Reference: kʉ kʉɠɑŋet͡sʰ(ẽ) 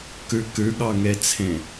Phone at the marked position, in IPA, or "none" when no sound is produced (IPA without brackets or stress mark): ẽ